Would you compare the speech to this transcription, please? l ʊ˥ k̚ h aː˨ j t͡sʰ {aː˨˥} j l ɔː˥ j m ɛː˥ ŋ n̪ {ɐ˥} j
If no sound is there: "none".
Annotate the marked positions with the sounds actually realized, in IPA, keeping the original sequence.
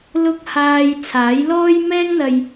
aː˨˥, ɐ˧

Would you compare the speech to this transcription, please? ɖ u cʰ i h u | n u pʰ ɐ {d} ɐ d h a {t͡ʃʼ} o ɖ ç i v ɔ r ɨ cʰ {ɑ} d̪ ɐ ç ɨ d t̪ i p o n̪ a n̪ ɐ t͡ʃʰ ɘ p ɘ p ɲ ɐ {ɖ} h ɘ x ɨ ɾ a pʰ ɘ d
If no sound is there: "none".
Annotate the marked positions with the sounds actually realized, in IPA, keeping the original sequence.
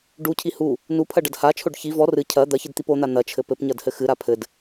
ɖ, t͡ʃʰ, ɐ, d

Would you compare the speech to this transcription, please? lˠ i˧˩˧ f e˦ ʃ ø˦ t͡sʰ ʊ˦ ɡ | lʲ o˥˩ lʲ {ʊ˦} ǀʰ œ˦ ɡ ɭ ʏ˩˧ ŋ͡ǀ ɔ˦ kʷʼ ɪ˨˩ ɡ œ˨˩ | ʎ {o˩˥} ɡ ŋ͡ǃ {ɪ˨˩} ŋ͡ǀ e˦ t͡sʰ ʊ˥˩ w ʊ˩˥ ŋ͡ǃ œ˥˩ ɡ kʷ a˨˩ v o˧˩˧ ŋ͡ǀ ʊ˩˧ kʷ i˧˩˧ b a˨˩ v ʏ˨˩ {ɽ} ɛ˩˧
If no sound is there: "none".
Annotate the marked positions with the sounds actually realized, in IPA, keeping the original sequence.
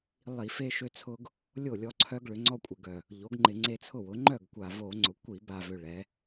ɔ˦, o˩˥, ɪ˧˩˧, ɭ

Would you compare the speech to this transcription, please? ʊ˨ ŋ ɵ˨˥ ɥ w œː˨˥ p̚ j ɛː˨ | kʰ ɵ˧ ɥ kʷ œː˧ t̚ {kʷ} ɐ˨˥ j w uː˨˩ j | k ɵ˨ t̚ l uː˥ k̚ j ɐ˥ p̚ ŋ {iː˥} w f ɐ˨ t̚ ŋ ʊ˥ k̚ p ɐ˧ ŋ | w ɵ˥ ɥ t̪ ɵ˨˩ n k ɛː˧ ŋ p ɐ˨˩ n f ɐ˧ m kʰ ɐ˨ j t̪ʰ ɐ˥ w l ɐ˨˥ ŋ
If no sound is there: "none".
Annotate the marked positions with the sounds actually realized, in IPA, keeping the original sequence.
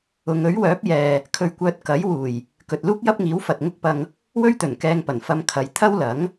k, iː˨˥

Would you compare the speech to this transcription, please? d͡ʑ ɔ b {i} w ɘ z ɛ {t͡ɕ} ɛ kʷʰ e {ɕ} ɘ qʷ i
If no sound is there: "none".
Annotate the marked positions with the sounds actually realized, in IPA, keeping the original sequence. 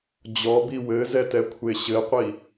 i, t, ɕ

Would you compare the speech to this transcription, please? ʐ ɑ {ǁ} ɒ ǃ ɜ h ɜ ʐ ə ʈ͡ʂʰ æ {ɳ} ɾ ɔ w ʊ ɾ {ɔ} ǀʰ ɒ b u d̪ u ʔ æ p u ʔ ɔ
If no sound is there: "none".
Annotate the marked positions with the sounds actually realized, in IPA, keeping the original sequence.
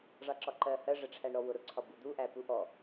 ǁ, ɳ, ʊ

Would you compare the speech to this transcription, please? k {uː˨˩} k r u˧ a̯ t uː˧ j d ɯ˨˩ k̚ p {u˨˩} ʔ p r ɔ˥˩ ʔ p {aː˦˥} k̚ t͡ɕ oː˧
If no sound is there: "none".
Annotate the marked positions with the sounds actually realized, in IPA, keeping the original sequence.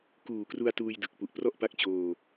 uː˨˩, u˨˩, a˦˥

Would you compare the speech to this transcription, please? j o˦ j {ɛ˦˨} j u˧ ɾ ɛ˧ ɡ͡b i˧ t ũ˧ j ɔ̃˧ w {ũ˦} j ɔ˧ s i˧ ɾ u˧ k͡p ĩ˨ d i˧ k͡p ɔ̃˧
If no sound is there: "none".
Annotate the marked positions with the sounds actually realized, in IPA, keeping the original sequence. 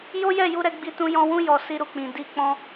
ɛ˦˨, ũ˦

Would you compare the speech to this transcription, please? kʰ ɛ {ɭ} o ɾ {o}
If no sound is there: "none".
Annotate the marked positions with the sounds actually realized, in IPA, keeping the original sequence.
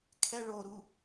ɭ, u

